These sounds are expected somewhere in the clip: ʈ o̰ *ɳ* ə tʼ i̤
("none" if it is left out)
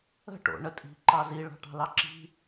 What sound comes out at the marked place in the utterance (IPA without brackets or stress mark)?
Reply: ɳ